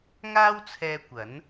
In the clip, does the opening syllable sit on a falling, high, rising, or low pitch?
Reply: high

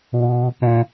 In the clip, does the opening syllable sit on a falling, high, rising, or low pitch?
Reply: high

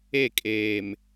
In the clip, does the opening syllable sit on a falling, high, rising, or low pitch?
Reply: falling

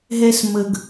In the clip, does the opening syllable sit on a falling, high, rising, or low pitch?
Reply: high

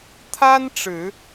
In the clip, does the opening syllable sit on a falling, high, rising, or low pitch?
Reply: high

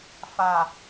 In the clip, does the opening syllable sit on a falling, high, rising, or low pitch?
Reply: low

